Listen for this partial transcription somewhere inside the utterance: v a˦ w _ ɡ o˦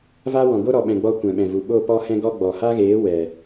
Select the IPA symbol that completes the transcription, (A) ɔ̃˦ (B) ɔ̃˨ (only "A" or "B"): B